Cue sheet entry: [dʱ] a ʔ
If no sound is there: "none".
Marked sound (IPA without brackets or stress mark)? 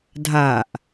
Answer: dʱ